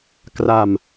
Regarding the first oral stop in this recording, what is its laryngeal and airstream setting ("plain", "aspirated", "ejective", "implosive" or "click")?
plain